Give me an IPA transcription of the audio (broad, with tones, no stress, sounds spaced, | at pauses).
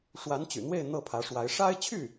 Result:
ʂ w a˧˥ n t͡ɕ y̰˨˩ n̪ w e˥˧ ɪ̯ n̪ ɤ˥˩ pʰ ä˧˥ ʂ w a˧˥ ɪ̯ ʂ a˥ ɪ̯ t͡ɕʰ y˥˩